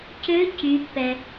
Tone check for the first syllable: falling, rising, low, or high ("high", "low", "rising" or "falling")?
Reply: rising